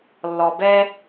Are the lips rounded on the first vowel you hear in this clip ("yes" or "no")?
yes